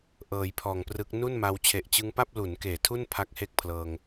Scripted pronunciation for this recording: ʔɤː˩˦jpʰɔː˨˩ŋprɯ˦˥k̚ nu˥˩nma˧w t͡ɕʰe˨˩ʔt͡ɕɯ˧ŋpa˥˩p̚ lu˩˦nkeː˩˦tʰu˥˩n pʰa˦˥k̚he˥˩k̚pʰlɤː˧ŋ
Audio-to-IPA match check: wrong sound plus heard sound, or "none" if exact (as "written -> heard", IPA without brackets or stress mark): none